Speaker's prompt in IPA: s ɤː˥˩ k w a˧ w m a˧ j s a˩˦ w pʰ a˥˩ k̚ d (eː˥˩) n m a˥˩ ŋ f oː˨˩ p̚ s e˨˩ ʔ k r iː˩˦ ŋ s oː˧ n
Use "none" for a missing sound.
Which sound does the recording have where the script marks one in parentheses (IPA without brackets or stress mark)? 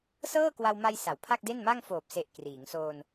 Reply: e˥˩